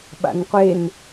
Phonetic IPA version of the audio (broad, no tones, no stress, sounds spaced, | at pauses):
ɓ a̰ n qʷ e n